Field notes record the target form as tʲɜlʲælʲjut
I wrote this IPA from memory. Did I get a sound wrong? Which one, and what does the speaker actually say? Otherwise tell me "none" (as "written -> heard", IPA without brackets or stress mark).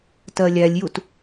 tʲ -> t